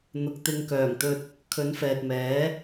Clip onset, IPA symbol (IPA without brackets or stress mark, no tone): n̪